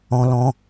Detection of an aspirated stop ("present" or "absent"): absent